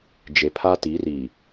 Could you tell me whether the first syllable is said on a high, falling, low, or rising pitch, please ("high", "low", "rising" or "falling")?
low